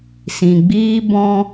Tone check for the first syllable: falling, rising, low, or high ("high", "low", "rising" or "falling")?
low